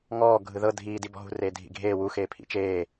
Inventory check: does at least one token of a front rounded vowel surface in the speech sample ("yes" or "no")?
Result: no